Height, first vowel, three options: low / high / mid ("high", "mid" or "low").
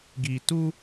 high